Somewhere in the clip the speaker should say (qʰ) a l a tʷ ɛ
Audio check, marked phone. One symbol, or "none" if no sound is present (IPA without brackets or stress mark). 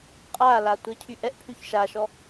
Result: qʼ